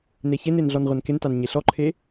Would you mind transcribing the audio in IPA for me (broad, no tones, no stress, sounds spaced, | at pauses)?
n e ç e n e n ɮ ɔ n ʁʷ ɛ n k ɪ n t a n ɲ e ɬ ɔ ǃʰ e